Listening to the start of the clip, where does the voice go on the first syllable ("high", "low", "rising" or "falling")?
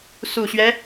low